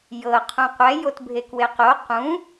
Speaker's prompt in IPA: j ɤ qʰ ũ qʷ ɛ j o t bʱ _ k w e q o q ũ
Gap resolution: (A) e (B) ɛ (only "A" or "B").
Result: A